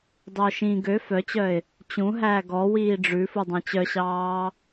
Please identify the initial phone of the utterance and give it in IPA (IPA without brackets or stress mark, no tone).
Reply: dˤ